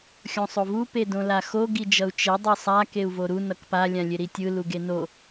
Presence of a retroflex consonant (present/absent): absent